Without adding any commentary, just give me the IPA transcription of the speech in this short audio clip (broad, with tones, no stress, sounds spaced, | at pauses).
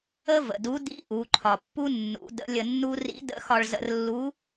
ə˥ v ə̰˩ d u˧˥ d ḭ˧˥ ʔ u˩˧ ǃʰ ɒ˩ pː u˥ nː ṵ˩˧ d ə̰˧˥ lʲ ə˧ nː u˥ r ḭ˧˥ d ə̰˧˥ x ɒ˧ ɭ z ə̰˧ r lː u˧˥